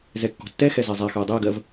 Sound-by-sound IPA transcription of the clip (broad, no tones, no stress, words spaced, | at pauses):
zɛkːɔ̤tːɛxɛ zɛzˤaxøə̯ dˤøə̯ɡɜv